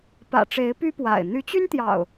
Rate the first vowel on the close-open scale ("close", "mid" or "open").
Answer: open